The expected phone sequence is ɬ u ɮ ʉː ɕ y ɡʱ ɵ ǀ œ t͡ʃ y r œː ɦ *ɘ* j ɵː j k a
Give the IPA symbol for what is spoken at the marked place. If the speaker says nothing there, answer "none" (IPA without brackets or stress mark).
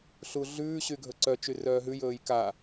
ʉ